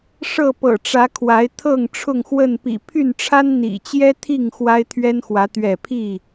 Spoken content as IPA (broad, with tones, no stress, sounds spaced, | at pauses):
ʂ ɤ˥˨ p ɤ̰˨˩ ʈ͡ʂ ä˨˦ kʰ w a˨˦ ɪ̯ t̪ʰ ɤ˥˨ ŋ ʈ͡ʂʰ ʊ˥˨ ŋ x w ə˥˨ n p ḭ˨˩ pʰ y˥˨ n ʈ͡ʂʰ a˦ n n̪ ḭ˨˩ t͡ɕ j ɛ˦ t̪ʰ i˥˨ ŋ x w a˦ ɪ̯ t̪ʰ ɥ ɛ˦ n x w ä˨˦ t̪ ɥ ɛ˥˨ pʰ i˥˨